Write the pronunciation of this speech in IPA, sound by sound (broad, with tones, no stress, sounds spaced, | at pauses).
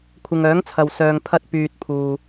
kʷʰ ɪ˨ ŋ œː˨˥ ŋ t͡sʰ ɐ˨ w s œː˨ ŋ pʰ ɐ˧ t̚ p yː˧ t̚ pʰ uː˨